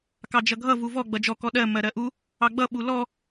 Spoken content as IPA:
kɑd͡ʒʌɡʱʌ vuvɔ ɡ͡bʌd͡ʒɔ kɔɗɜ mɜɾɜʔu | ɑɡ͡bʌ ɓulɔ

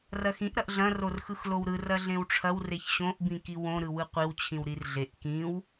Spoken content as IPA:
rɐxĩʔ ɾɐʔɮɐ̃ rorxɯxlowɾɯr ɐɮẽwʈ͡ʂʰɐw reçɕõʔ bĩkiwõ ɾɯwɯqʷiw t͡ɕʰĩwɾirɮeʔ kĩw

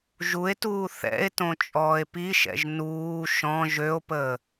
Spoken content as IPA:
ʒue̯tuː θɛ̰e̯tõ t͡ʃʼɔːe̯piʃɛ̰ʒ nuː ʃɔ̃ ʒøo̯pəː

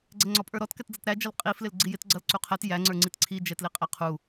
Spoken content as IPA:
ɡ͡ǀɛŋ͡ǀɔpʼə˞ɾɔt kɛtd͡zʌtɾæ d͡ʒʌlqʼi flɪlɡ͡ǀijɪt ɡ͡ǀʌlǀuqʰɛt jæ ŋ͡ǀə˞ŋ͡ǀitǀʰi d͡ʒɛtliqʼæqʰu

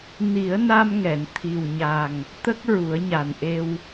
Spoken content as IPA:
ni˨˩˦ə̯na˧mŋɛ˨˩˨n t̪ʰi˨˩wɲa˨˩ŋ | t̪ə˦˥k̚ɹu˨˩˦ə̯ɲa˨˩nʔe˧w

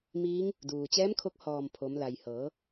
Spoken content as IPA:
miː˧˥ŋ | duː˩t͡ɕɛː˧˥mkʰo˧k̚ hɔː˧˩mpʰo˩˧mla˩j hɤː˩˧

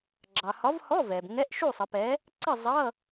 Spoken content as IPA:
ɡ͡ǁɑ˩hɒ˨˥v hɔ˧˥˧vɛ˩b ŋɛ˧˥˧ʔʃu˥˨sˤə˩˧pɛ˨˥ | ǀə˥˨zˤʌ˧˥˧

